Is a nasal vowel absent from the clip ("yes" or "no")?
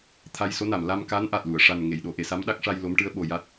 yes